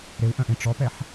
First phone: ɾ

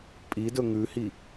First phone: pʼ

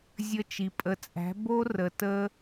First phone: zʲ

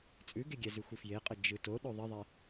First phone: t͡sʼ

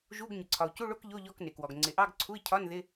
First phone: ʒ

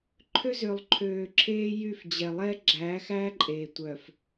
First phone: ǃʰ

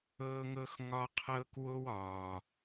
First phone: ɤː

